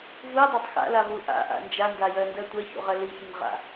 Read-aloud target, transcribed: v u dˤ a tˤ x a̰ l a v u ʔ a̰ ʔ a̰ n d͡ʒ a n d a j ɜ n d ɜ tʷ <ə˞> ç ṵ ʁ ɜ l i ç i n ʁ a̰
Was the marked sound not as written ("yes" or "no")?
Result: yes